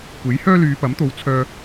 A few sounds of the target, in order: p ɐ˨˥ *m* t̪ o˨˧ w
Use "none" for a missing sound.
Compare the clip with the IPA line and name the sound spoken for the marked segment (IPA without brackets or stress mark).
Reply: m